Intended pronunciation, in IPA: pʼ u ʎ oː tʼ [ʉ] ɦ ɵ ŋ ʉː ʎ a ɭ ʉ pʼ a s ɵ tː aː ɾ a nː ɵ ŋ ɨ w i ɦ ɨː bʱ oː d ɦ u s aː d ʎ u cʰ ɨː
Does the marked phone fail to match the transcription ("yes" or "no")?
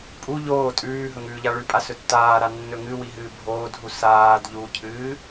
yes